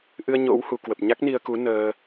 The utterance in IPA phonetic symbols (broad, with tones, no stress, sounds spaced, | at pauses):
ʔ ɨ˧ ə̯ ɲ o̰˧˥ w h u˧˩ k w ə˨˩ p̚ ɲ a˦˥ k̚ n i˧ ə̯ k u˨˦ n əː˧